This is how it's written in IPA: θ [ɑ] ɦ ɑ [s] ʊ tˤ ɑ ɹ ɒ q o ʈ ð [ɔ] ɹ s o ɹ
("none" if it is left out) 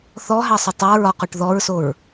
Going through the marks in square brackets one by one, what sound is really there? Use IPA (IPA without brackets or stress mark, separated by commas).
ɔ, sˤ, ɔ